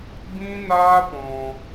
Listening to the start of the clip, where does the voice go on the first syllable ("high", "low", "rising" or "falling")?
high